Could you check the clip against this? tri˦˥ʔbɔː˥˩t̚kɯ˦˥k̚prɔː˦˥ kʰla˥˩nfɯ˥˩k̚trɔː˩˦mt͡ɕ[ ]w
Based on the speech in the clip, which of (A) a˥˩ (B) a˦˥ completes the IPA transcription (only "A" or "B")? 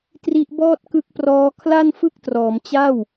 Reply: A